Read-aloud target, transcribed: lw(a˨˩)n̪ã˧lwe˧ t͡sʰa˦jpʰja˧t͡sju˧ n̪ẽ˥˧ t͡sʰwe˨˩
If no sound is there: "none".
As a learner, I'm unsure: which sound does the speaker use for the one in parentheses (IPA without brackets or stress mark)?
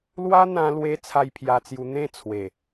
a˦